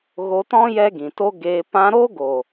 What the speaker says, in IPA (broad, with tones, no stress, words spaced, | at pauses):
ɣo˧tɔ̃˦ jɛ˦ɡĩ˨to˦ɡeː˧ pã˧ɾo˦ɡo˨